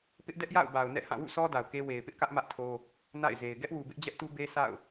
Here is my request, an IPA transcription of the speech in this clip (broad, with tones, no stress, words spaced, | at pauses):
pɪ˦ʔdɛ˦ʔja̰˦˨ʊ̯ ba˨ʊ̯nɛ̰˦˨hã˦˨ wṵ˦˨sʰɔ˦da˨ʊ̯ ke˦ we˨ɪ̯pɪ˦ʔkä˦ʔ mä˦ʔtʰo˦ | na̰˦˨ɪ̯ze˨ɪ̯ ɡɛ˦ʔwu˨ bɪ˦ʔd͡ʑɛ˦ʔtu˦ be˦ sʰa̰˦˨ʊ̯